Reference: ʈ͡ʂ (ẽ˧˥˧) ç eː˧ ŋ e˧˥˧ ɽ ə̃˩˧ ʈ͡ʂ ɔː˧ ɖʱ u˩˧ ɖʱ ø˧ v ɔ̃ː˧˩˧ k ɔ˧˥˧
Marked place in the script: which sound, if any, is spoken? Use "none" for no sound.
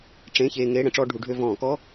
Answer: ẽ˧˥˧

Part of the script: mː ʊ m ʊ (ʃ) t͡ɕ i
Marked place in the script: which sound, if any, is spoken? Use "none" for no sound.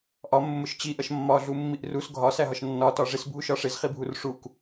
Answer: ʃ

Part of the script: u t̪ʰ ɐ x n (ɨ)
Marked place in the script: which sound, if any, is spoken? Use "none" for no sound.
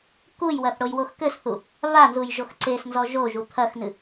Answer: ɨ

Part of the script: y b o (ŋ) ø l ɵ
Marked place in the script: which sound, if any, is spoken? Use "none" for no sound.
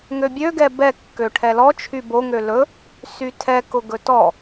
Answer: ŋ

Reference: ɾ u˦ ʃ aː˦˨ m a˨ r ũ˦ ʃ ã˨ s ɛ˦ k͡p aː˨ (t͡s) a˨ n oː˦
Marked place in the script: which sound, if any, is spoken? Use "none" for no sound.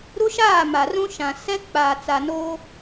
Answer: t͡s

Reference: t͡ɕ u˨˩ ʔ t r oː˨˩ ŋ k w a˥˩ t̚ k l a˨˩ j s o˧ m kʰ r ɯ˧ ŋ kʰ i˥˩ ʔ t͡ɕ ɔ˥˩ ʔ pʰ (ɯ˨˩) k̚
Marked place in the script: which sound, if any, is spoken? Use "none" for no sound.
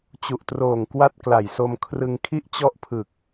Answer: ɯ˨˩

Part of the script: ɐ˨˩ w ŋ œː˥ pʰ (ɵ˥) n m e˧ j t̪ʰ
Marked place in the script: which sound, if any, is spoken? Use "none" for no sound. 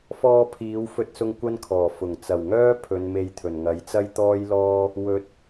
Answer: ɵ˨˧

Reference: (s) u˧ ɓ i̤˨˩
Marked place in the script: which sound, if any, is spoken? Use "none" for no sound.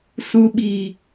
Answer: s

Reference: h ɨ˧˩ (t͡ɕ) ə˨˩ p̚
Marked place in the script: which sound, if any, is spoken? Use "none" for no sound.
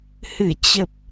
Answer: t͡ɕ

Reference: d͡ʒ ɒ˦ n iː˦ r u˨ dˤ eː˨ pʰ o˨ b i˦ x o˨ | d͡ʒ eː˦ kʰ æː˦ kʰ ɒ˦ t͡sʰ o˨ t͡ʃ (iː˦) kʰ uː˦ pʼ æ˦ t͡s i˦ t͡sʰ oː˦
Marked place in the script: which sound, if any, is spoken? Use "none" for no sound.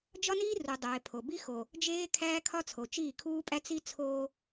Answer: iː˦˨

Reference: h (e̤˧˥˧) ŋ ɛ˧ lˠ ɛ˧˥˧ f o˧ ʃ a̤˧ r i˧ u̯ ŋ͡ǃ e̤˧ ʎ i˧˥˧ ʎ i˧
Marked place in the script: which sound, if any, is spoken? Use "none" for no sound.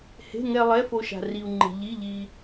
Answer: e̤˧˥˧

